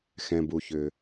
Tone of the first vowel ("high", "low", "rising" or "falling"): low